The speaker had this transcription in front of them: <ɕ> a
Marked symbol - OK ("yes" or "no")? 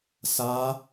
no